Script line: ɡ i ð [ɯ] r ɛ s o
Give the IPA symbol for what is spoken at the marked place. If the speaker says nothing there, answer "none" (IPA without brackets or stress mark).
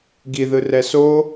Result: ɯ